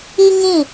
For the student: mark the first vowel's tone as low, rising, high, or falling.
high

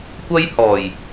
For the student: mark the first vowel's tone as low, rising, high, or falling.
high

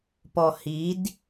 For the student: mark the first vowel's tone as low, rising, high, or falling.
low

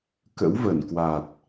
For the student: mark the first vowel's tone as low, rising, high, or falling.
rising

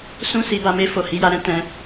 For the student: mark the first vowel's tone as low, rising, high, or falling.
high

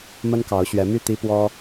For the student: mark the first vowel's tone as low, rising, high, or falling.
high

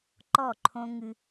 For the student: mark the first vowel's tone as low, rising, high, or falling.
falling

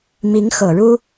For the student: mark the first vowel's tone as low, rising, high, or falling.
rising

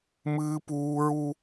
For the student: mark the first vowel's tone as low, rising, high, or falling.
high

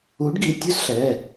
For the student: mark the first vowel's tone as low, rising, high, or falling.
rising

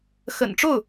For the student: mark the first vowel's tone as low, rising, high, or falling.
low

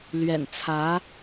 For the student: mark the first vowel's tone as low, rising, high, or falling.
low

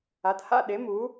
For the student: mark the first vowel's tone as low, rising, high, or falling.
rising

